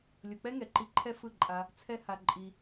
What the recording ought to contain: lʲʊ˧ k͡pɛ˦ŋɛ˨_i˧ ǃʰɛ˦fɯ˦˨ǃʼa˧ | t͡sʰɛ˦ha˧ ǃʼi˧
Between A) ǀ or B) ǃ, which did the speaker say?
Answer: B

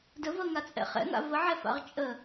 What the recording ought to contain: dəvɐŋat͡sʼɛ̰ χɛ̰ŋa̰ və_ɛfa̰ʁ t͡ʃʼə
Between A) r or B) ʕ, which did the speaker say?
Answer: B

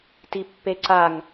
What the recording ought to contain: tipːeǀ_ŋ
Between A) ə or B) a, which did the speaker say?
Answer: B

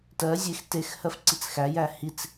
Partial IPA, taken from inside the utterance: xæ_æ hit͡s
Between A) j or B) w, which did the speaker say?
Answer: A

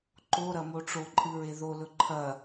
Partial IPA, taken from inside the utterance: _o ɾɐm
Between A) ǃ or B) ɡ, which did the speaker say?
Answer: A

